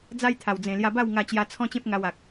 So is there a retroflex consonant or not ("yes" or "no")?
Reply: no